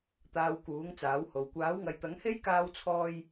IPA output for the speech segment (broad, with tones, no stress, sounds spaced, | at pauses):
t̪ aː˧ w k uː˨˥ ŋ t͡s aː˨˥ w h o˨ w kʷ aː˨˥ w ŋ ɐ˨˧ j t̪ ɐ˨˥ ŋ h e˥ j k aː˥ w t͡sʰ ɔː˥ j